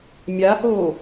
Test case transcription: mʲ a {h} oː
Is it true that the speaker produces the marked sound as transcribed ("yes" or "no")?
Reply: yes